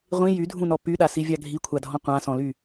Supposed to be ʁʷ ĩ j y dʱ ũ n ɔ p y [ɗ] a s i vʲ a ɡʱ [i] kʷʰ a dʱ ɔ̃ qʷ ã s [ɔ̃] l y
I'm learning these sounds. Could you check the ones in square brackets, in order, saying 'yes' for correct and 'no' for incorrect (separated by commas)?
yes, yes, yes